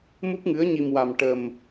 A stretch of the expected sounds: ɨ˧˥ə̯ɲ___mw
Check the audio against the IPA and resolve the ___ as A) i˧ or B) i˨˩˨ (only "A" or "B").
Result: A